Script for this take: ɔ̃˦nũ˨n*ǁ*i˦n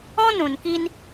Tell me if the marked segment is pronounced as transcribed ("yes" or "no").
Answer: no